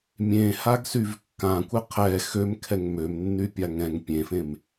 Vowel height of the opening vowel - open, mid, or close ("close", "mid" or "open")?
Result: mid